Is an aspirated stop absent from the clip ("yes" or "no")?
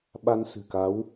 yes